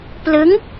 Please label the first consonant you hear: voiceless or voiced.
voiceless